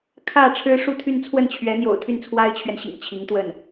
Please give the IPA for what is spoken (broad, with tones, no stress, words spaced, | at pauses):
kʰä˥˩ ʈ͡ʂʰɻ̩˥ʂu˥˧t̪ʰy˥˧n t͡sʰwə˥˩nt͡ɕʰɥɛ˧˥n̪jo̰˨˩ʊ̯ t̪ʰy˥˩nt͡sʰwa˥ɪ̯t͡ɕʰɥɛ˨nɕḭ˨˩ŋ t͡ɕʰi˧˥ŋt̪wə˥˩n